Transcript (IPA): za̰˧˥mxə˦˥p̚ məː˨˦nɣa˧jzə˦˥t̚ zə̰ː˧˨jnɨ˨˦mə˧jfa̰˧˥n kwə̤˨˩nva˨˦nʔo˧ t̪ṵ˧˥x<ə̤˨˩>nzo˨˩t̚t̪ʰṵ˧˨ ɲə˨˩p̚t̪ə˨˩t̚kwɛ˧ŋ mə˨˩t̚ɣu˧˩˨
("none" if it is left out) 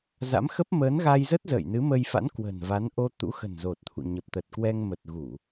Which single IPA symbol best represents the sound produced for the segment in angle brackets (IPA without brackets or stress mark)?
ə̤˨˩